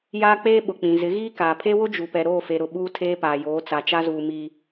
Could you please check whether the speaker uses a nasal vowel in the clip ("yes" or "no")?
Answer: yes